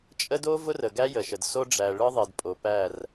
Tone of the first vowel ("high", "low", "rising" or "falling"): high